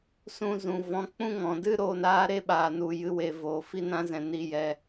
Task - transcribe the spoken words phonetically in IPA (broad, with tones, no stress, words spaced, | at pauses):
sũ˧zũ˨ vɔ̃˨˦k͡pũ˦ŋɔ̃˨dɨ˦ ɾoː˧naː˦ ɾe˦ɓaː˨nu˨jɨ˨˦ we˨ voː˨ fi˧nã˧zɛ̃˨ ni˧jɛ˧